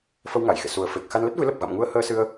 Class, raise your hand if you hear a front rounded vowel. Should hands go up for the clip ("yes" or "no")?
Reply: no